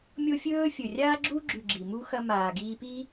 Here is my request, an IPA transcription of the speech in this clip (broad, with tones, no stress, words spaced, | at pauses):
mʲo˦fʲɵː˦ fʲɵ˨ rʲaː˧ɡ͡ǁu˧ɡ͡ǁʉ˨ ɡ͡ǁi˨mu˦ xɐ˧ maː˨ɡiː˧piː˦